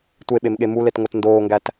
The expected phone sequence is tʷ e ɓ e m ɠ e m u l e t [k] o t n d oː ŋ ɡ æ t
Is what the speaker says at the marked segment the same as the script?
no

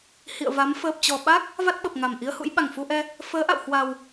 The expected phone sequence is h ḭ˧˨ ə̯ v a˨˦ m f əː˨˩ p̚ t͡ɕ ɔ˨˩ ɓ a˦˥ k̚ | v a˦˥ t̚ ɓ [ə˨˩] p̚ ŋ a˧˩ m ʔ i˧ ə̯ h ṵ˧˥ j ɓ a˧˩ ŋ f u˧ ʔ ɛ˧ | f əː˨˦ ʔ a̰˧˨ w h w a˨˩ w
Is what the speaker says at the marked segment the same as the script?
yes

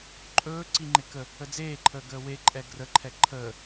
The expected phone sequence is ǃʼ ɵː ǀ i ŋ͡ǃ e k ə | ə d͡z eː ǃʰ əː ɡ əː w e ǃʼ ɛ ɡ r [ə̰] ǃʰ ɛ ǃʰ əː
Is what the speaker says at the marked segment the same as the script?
no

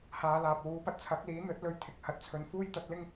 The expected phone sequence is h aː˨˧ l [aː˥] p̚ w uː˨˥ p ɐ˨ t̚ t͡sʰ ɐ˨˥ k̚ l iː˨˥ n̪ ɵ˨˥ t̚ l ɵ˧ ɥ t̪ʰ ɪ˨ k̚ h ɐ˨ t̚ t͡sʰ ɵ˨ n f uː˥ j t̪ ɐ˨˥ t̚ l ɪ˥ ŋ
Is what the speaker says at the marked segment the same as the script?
no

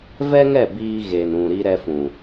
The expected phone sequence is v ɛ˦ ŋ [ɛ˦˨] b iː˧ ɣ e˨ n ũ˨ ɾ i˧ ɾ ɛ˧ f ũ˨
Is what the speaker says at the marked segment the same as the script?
yes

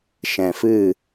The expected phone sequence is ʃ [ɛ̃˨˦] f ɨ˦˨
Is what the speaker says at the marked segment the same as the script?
no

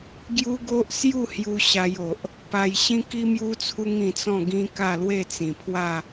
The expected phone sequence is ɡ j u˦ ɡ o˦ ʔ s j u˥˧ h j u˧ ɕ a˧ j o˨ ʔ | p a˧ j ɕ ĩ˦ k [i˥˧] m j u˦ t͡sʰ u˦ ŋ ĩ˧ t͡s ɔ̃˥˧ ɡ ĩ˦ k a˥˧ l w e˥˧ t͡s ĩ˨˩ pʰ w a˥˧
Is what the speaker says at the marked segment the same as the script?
no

